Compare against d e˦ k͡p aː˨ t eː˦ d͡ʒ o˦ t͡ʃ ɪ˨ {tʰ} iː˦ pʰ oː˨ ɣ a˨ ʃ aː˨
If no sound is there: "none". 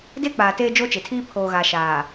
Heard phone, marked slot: tʰ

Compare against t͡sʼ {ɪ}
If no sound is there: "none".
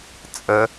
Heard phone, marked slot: ə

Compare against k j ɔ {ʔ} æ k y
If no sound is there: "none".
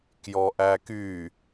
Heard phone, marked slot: ʔ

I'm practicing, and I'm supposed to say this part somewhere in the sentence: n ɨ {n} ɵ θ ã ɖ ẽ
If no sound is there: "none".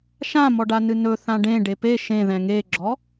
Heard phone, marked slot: n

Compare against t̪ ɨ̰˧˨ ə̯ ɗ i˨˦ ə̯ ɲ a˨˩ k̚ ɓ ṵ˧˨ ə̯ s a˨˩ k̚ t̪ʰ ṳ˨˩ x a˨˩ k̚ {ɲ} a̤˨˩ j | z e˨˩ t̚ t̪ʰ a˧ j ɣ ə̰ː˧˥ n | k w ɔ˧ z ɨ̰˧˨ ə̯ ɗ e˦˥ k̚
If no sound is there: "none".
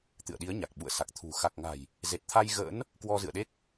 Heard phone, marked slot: ŋ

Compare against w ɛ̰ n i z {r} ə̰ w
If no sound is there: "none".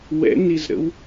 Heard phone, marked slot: ɾ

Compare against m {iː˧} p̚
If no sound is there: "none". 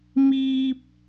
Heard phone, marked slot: iː˧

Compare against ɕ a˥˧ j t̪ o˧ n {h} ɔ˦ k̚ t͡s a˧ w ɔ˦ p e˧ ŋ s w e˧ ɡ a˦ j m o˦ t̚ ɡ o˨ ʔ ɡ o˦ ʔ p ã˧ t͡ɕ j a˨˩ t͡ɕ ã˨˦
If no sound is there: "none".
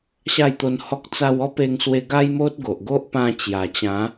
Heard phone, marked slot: h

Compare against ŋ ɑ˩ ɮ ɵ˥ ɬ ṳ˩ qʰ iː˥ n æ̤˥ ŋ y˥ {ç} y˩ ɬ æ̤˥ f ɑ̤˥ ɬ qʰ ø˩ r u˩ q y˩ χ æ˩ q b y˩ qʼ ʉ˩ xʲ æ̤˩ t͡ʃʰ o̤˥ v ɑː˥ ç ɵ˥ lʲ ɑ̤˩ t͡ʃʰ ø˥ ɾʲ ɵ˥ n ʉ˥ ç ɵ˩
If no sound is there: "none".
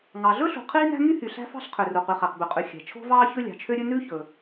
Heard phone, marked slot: h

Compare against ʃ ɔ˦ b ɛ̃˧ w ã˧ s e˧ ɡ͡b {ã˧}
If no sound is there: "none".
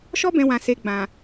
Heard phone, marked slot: ã˨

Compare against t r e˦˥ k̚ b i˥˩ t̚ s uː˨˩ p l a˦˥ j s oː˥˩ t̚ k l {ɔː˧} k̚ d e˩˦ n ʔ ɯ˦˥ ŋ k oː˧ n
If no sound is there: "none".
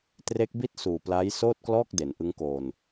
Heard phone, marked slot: ɔː˥˩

